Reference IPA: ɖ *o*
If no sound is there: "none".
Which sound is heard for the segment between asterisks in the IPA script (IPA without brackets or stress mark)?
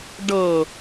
ɤ